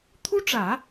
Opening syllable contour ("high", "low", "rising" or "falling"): high